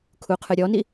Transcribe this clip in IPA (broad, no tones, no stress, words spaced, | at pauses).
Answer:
kʰuqʰɨɾʲɔni